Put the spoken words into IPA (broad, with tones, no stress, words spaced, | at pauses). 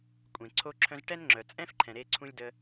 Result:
kʷʼẽ˩ ǀʰo˧ǁʰœ̃˧z ʈɛ˧n ŋ͡ǁœ˩ t͡sʼɛ̃˥fǃʰɛ̃˩ɾe˧ǀʰũ˧lʲ də˧